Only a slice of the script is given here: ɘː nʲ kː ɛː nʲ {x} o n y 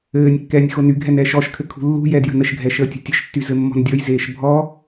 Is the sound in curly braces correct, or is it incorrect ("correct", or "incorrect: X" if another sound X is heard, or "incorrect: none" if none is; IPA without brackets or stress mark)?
correct